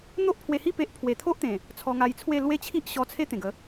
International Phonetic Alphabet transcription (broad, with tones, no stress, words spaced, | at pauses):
n̪o˦ʔpʰwe˧hi˥˧ pe˦ʔ pʰwe˨˩t̪ʰo˦ʔt̪ẽ˨˩ | t͡sʰɔ˧ŋa˧jt͡sʰwe˥˧ lwe˦t͡ɕʰi˦ʔ ɕɔ˧t͡sʰe˦ t̪ẽ˨˩ɡə˨˦